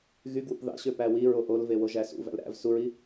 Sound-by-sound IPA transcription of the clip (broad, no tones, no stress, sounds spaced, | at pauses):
ɣ y ɡ w ṵ p ð ɑ̰ ɕ ø p æ w i ɹ o ʔ o l v e w o ʒ æ s ṵ v æ̰ l ɾ æ̰ v s u ɹ i